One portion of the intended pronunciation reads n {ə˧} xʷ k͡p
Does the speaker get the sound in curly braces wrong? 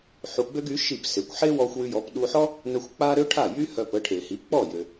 no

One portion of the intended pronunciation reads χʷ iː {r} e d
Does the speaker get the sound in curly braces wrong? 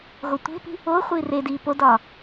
no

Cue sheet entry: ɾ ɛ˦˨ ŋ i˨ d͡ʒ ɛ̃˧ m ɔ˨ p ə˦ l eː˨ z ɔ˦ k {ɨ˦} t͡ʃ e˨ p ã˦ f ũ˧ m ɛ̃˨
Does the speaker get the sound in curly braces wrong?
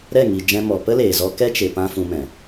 yes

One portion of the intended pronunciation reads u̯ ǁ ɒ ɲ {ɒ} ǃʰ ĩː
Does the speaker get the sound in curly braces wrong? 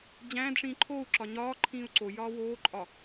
yes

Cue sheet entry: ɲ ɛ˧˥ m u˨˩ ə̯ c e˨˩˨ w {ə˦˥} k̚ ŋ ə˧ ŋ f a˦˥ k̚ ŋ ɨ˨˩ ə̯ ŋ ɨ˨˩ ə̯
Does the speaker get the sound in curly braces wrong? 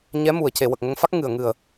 yes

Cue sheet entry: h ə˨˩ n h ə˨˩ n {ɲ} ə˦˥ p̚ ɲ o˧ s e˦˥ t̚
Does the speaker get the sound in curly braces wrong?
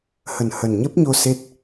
no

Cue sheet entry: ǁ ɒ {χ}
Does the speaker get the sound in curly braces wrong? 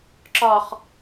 no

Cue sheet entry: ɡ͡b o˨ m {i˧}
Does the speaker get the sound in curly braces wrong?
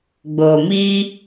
no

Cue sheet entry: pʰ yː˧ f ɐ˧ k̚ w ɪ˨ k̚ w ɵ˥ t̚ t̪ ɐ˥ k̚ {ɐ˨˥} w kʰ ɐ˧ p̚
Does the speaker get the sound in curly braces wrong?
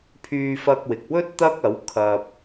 no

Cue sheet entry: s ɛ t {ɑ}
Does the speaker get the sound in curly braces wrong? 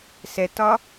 yes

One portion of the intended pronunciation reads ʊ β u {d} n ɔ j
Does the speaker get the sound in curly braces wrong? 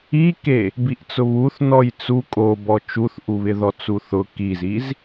yes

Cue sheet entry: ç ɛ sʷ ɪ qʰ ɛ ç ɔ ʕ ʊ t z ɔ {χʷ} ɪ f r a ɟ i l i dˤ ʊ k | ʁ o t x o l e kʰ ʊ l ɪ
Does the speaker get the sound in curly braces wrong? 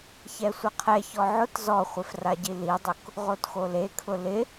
no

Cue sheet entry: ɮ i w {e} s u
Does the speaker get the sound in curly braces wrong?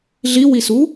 yes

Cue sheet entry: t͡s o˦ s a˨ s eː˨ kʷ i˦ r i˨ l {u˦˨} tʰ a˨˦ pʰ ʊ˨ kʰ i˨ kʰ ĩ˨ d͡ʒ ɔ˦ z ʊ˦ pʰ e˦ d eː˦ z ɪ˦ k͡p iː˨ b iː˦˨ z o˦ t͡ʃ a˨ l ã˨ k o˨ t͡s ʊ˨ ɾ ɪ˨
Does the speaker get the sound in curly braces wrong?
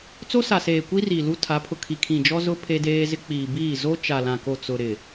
yes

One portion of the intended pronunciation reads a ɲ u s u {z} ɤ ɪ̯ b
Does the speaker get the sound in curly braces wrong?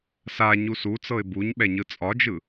yes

